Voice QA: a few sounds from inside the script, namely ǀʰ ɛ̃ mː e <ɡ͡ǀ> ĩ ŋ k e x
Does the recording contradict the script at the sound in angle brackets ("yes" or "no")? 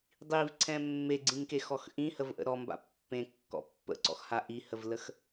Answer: no